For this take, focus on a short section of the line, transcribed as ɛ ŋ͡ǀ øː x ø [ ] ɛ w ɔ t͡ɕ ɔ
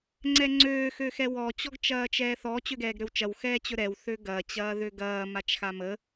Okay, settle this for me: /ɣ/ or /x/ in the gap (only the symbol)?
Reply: x